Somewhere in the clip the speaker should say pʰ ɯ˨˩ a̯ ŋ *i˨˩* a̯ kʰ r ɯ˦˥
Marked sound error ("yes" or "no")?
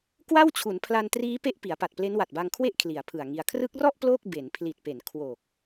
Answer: yes